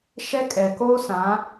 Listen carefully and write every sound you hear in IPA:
ʃ ɛ˦ kʼ ɛ˨ k oː˦ s ã˨˦

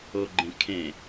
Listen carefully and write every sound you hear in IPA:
o ɡ͡ǃ ẽ kʰ ẽ

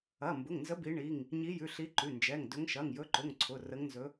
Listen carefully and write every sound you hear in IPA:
ɐ˩˧˩ m b ʊ˩˧˩ ŋ n z ə˨˦ b i˨˦ ɳ i˩˧˩ ŋ | ɲ i˨˦ j ʉ˩˧˩ ɬ i˨˦ ǃ ʉ˩˧˩ n d͡ʒ ɛ˩˧˩ ŋ d ɵ˨˦ ŋ ʃ ɐ˩˧˩ ŋ j ɵ˨˦ ǃ ʊ˩˧˩ ŋ ǀʰ ʊ˩˧˩ r ə˨˦ ŋ n z ɵ˨˦

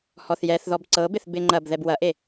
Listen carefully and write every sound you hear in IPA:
h ɔ θ j ɛ θ ð ɔ b ǀ ɤ b ɪ θ b ɪ ŋ͡ǃ ɐ b ð ɛ b w ɐ ʔ e

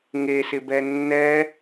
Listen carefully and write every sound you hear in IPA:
ŋ e s ɪ b ɛ nː ɛ

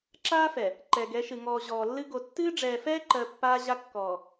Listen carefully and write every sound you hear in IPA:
ǁ aː˦ f ɛ˨ | ǃ ɛ˨ ɡ ɛ˨˦ ʃ ɨ˨ ŋ ɔː˨ ʑ ɔː˨ lː ɨ˦ ɡ o˨ tː ɨː˦ ɖ͡ʐ ɛː˨ f ɛː˦ ǃ ɜ˨ pː aː˦ ʑ a˦ kː ɔː˨

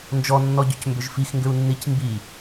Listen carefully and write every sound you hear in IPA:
n d͡ʒ ɔ nː ɔ ɟ ʏ c m b ʏ ʒ f i x ŋ ɡ ʏ u̯ nː i c m b i

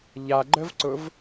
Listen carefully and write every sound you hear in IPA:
ʎ a ɡ͡ǃ ə v ǀ ʊ v

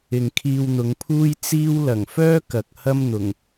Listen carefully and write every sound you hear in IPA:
ɪ˨ ŋ kʰ iː˧ w n̪ ʊ˨˧ ŋ pʰ uː˥ j t͡s iː˥ w l ɐ˨˩ ŋ f œː˥ k ɐ˨ k̚ h ɐ˥ m n̪ ʊ˨˩ ŋ

